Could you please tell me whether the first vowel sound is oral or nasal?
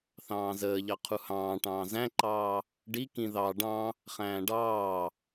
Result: nasal